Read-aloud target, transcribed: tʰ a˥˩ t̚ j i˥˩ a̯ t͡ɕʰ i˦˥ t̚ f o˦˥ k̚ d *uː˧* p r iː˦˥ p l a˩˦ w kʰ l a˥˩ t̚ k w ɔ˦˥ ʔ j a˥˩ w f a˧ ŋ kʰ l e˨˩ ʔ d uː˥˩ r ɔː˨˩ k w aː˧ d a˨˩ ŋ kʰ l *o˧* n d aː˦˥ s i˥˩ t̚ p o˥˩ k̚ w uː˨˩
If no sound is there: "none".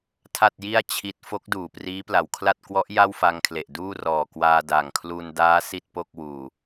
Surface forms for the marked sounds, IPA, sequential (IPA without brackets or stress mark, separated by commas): uː˨˩, u˧